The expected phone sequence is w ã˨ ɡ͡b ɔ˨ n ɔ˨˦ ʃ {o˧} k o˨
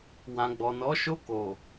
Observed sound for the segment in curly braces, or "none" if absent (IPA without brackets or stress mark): o˧